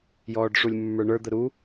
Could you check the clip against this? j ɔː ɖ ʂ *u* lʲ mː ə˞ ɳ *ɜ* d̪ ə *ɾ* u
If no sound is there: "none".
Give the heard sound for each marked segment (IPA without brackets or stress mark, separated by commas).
u, ə˞, ɾ